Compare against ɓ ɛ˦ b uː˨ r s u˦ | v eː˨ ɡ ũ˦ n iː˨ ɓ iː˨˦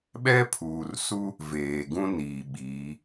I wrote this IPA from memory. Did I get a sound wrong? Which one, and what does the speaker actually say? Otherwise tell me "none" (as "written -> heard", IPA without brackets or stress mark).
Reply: b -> pʰ